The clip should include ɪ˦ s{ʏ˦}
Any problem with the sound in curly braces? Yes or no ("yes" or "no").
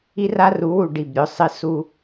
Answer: yes